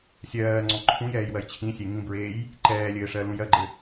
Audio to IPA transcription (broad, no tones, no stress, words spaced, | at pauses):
sʲɜː ŋ͡ǀɔ̃ǃʰũjɛːj wɜjt͡ɕʰĩsʲe ŋĩbɹeːj | ǃɛːlʲɘː ʂɜlũjɜɡ͡ǃɘ